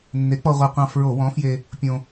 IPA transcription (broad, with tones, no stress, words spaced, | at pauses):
nːe˨˥k͡pɔ˧ʁʷe˧qʷɑ̃˧ fɹo˧˩˧ wɔ̃˨˥fje˧ | pʲõ˧